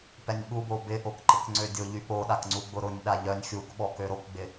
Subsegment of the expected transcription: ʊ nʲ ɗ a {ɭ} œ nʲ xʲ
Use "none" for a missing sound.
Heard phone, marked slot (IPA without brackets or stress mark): ʎ